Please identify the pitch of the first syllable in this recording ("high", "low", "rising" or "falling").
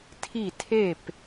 falling